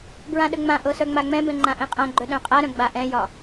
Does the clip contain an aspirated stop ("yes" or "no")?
no